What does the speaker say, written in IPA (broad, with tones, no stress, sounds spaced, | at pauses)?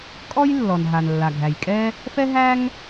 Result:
kʼ ɔ˥ j lː ɔ˩ n ɦ a˩ n lː a˩ ɡʱ æ˩ j kʼ ɛ˥ | f ɛ˥ ɦ æ˥ ŋ